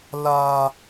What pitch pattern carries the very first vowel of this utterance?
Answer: high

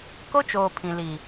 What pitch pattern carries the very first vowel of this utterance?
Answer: high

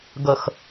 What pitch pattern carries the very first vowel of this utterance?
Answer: low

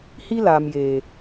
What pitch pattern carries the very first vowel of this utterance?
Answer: high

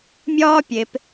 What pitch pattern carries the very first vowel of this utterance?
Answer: high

